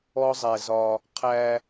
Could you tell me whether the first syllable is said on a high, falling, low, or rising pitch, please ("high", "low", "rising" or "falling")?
high